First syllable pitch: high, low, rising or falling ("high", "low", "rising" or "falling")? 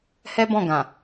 high